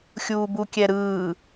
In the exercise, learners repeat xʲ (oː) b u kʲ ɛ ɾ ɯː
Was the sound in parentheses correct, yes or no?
no